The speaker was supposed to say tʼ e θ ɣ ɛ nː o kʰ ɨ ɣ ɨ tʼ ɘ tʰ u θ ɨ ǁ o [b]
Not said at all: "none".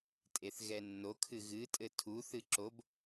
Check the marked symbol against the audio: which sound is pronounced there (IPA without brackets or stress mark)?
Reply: b